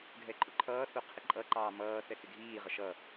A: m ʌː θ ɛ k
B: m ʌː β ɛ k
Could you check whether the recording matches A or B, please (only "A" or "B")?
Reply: A